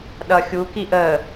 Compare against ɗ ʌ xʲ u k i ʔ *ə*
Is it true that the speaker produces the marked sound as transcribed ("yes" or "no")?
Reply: yes